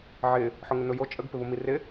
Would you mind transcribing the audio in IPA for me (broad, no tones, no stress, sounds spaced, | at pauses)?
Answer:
ʕ ɪ | ħ ʊ ŋ ɘ n ʊ j o t͡ʃʼ ə ɡ p ɪ β ʊ m i r ɪ